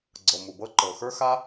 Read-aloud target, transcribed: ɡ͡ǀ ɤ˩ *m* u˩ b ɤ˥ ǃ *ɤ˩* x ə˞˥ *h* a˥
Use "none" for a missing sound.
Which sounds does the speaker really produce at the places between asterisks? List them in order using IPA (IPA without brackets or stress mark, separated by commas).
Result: m, ɤ˩, x